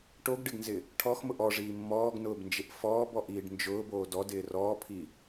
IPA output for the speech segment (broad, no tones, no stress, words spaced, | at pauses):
ʈoɡɖɪɡnzɪ | ʈʰɔxmʊʔ ɔʐiː mːɔːɡnʊːbnd͡ʒɪʔ fɔːbɔʔiːɖ nd͡ʒʊːboː dɔdɪː rɔːpʰi